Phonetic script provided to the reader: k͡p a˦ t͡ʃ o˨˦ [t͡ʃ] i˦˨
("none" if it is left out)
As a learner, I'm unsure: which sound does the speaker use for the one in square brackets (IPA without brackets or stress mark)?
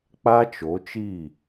t͡ʃ